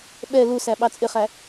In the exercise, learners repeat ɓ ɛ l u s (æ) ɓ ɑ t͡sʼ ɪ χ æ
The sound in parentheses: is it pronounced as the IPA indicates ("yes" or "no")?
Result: yes